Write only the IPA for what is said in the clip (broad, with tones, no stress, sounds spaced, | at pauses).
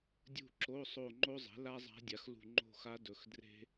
dʲ ṳ˦˨ ǁ o˧˥˧ sˤ o˦˨ ŋ͡ǃ o˥ zˤ ɛ̤˩˥ l a˥ zˤ a̤˧˥ dʲ a˩˥ x l ṳ˦˨ ŋ͡ǃ o̤˦˨ x a˧˥ d ɵ˨ x d r e̤˥